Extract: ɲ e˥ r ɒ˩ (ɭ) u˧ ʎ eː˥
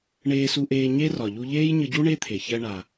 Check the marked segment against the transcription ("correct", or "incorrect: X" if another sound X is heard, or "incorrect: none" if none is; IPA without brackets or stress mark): incorrect: ʎ